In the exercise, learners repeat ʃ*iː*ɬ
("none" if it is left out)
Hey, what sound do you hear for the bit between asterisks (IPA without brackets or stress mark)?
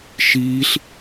iː